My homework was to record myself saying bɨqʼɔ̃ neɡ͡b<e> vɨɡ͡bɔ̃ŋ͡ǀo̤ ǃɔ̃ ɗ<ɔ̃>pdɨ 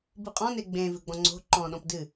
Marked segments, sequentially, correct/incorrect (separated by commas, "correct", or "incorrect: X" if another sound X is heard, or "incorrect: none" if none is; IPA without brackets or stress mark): incorrect: ẽ, correct